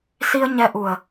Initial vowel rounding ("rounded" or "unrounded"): unrounded